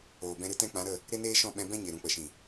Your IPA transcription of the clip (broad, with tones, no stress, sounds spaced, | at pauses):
oː˨ b ɛ̃˧ ɾ ɨ˦ t ɛ̃˦ k͡p ã˨˦ ɾ ə˦˨ | ɾ e˦ n eː˦ ʃ ɔ̃˦˨ ɓ ɛ̃˧ b ɛ̃˦ ɲ e˨ ɾ ũ˨ k͡p ə˨ ʃ ĩ˨